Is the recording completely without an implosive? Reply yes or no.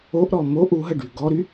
yes